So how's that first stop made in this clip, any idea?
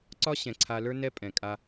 click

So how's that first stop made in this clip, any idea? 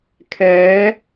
aspirated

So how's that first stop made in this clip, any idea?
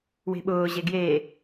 implosive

